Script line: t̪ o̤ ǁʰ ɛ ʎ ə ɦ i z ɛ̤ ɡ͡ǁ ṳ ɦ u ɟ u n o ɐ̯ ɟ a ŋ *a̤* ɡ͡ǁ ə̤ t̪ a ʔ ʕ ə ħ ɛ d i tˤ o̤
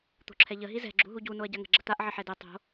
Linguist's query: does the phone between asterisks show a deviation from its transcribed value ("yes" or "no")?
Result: yes